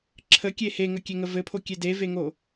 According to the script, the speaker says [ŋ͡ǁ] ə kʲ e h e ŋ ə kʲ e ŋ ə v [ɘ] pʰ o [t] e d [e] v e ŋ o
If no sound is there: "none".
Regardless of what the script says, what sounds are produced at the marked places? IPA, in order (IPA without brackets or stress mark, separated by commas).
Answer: ǁʰ, ɘ, kʲ, e